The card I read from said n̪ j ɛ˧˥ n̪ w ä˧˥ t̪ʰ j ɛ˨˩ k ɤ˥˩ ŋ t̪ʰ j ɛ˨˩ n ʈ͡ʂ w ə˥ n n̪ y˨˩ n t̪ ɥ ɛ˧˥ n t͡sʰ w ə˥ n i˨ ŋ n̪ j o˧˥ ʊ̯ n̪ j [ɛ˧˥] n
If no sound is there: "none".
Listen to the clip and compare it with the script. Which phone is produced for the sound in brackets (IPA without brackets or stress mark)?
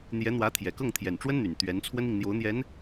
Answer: ɛ˧˥